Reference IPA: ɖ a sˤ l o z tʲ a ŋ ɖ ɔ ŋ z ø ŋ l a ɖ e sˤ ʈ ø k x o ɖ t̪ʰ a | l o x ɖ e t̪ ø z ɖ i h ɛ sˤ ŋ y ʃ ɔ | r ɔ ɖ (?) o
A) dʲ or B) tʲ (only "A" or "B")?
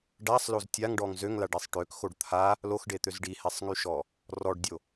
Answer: A